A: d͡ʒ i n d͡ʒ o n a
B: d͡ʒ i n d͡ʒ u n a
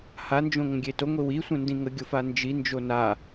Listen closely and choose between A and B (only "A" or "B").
A